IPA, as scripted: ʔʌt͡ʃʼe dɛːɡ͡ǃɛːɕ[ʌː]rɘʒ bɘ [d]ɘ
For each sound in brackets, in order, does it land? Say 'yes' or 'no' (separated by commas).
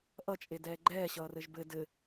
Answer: yes, yes